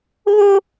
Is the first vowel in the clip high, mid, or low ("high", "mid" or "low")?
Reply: mid